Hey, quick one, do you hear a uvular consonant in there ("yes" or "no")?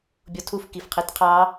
yes